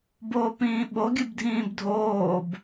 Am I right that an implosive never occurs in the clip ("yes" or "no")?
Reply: no